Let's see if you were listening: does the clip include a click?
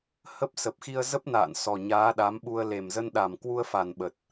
no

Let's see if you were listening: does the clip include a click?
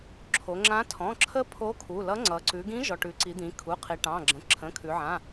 yes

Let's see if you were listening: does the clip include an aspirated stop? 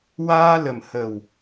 no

